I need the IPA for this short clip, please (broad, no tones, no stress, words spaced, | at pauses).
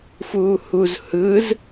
fuːhuz hɯz